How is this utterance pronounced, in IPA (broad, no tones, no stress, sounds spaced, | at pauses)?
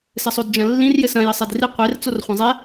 s ɘ sˤ o d d͡ʒ ɐ̃ lː ĩ r j ɘ s ɐ̃ j ɘ sˤ ɛ d r i qʷ e r t͡s o r χʷ ɐ̃ zˤ ɛ